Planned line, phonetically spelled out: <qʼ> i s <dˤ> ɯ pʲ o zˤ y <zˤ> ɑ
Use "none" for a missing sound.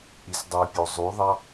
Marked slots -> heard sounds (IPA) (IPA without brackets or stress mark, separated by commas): ʔ, dˤ, ðˤ